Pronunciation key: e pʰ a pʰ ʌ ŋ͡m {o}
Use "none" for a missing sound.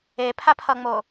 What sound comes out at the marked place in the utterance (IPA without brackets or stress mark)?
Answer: o